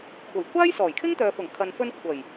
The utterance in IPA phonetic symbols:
kʷʰ ɐ˨˩ j kʷʰ aː˥ j s ɔː˨˩ j kʰ ɪ˥ ŋ t̪ œː˨ f ʊ˨˩ ŋ kʰ ɐ˨ n f ɵ˧ n kʷʰ ɐ˨˩ j

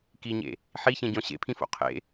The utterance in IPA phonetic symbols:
k i ɲ ḛ | ħ i ç ẽ ɟ ɔ̃ ɕ ḛ pʰ ĩ f o̰ qʰ ḛ

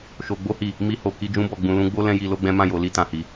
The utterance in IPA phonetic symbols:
ʃ o˧ ɡ͡b o˦ h i˦˨ | m i˧ h o˨ k i˧ d͡ʒ ũ˦ b ɔ˦˨ ɡ͡b ũ˧ l ũ˦ ɡ͡b o˦ l ɛ̃˦ j i˧ l o˦ ɡ͡b ɛ̃˦ m ã˦˨ j o˧ l i˦ t ã˧ h i˧

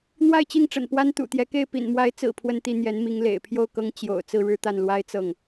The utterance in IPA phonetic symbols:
n̪ w a˥˧ ɪ̯ t͡ɕ i˥˩ ŋ ʈ͡ʂ ə̰˨˩ n p w a˥ n t̪ ṵ˨˩ t̪ j ɛ˧˥ k e˥˩ ɪ̯ p ḭ˨˩ n m w a˧˥ ɪ̯ t͡s ɹ̩˨˩ pʰ w ə˥˧ n t̪ i˥˩ n̪ j ɛ˧˥ n m i˧˥ ŋ l ḛ˨˩ ɪ̯ pʰ j o˥˩ ʊ̯ k ɤ˧˥ ŋ t͡ɕ j o̰˨˩ ʊ̯ t͡s ɹ̩˥˧ ɻ ɻ̩˥˧ t̪ a˥˩ n l w a˥ ɪ̯ t͡s ɤ˥˩ ŋ

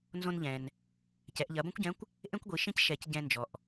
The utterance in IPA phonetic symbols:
n z õ˧ n ʎ ɛ̃˩ n | c ɛ˩˧ ʔ ʎ ɐ˩˧ b õ˥ kʷ ɟ ɛ̃˧˥ kʷ | ʔ ẽ˥ kʷ ɡʷ i˩˧ ʃ ĩ˥ c ʃ ɛ˩˧ c ɟ ɛ̃˧ n d͡ʒ ɔ˩ ʔ

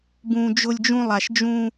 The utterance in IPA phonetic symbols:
b ũ˨ d͡ʒ ʊ˧ lʲ d͡ʒ ũ˧ lˠ a˨ ʃ d͡ʒ ũ˧

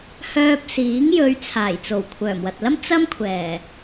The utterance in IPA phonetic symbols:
h œː˧ p̚ s iː˨˥ ŋ j ɵ˨˧ ɥ t͡sʰ aː˨˩ j t͡s o˨˩ w kʷʰ œː˨˩ m w ɐ˨ t̚ l ɐ˥ m t͡s ɐ˥ m kʷʰ ɛː˨˩

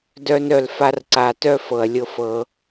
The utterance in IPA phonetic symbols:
d œ˦ n œ˧ l f a˦ r ǀ a˧ t œ˦ f ɤ˨ ɐ̯ lʲ ɤ˧ f ɤ˧

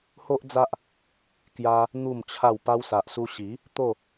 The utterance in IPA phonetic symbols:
h o˦ ʔ d͡z a˦ ʔ | k j a˧ | n̪ u˥˧ m t͡ɕʰ a˥˧ w p a˧ w s a˨ ʔ s u˧ ɕ i˨˦ | t̪ o˥˧

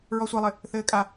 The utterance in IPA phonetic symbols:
ɹ ɔ sʷ e lˠ ɘ | θ ɘː kʼ a

